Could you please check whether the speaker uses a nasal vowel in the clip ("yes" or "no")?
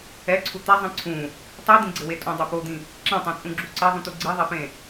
yes